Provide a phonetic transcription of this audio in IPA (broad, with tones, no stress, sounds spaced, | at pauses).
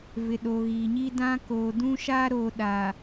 v ɪ˨ ɗ o˨ ɣ iː˨ ɲ i˦ d ã˦ k oː˨ d ũ˦ ʃ aː˦ ɾ oː˨ ɗ a˨